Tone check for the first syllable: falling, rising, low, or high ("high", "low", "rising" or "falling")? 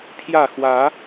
falling